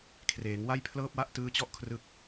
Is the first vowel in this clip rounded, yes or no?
no